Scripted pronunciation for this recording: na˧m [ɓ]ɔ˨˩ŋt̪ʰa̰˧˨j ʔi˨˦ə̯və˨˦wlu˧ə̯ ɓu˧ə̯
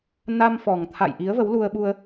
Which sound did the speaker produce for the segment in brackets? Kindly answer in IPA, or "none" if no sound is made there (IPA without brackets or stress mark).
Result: f